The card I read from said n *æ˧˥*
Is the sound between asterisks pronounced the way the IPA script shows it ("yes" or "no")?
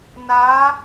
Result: no